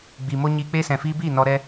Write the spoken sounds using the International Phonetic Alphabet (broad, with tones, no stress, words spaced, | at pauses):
ɡ͡bi˨mo˦ ɲi˧k͡pe˦ sɛ̃˨fiː˧biː˦˨ nɔ˧ɾɛ˦